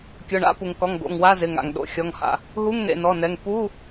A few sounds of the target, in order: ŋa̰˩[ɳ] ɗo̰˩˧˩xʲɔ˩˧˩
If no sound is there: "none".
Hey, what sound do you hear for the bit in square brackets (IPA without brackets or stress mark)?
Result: ŋ